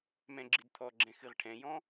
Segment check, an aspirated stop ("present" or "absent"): present